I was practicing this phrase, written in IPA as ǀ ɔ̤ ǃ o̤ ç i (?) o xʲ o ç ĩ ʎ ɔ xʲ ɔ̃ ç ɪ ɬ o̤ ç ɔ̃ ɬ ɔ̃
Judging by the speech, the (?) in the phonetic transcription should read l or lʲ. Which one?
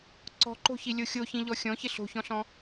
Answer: lʲ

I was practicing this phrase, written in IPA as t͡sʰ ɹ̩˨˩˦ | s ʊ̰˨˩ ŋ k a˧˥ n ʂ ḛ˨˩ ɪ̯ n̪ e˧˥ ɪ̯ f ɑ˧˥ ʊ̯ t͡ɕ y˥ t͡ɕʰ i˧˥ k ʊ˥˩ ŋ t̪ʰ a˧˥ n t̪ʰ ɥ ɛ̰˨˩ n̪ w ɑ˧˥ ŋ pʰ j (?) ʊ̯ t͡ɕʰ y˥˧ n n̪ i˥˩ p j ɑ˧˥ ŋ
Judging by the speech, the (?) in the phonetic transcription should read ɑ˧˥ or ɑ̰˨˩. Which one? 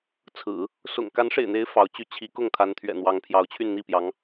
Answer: ɑ˧˥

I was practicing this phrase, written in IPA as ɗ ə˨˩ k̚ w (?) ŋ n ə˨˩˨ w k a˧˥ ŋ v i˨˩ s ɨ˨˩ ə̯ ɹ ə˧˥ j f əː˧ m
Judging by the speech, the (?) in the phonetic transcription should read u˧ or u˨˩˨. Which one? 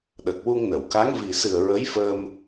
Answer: u˧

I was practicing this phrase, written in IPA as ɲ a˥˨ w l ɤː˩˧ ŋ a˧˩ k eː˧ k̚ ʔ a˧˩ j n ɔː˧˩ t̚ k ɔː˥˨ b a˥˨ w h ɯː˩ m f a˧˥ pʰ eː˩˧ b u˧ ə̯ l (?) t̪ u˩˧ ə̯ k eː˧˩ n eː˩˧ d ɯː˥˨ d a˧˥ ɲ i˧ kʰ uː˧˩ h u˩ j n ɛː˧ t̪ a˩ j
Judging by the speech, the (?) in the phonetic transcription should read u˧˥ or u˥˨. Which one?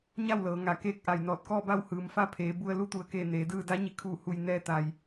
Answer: u˧˥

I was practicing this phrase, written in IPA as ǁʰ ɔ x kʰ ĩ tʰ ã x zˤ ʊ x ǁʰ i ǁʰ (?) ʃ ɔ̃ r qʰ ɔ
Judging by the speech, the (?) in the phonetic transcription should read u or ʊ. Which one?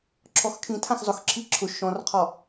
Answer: ʊ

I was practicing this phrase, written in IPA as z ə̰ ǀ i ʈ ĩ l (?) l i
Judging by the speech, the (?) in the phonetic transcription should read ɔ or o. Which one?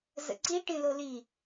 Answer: o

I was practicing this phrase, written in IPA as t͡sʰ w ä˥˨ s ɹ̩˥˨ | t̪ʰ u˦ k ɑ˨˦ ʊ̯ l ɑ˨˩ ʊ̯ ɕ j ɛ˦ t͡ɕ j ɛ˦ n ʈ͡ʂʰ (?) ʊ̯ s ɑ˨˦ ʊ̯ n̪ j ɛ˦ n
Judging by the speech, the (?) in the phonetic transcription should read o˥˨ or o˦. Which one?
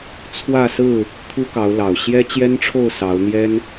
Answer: o˥˨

